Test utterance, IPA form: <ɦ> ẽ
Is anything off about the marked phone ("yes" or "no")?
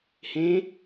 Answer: yes